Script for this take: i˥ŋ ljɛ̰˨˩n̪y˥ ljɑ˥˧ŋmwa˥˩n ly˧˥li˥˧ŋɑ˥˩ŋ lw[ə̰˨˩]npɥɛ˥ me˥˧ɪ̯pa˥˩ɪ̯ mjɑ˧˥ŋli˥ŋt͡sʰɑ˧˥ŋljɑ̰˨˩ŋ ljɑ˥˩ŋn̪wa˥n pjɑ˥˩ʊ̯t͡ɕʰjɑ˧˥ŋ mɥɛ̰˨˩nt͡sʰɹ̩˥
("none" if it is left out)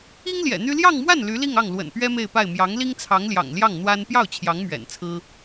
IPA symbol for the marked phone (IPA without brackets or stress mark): ə̰˨˩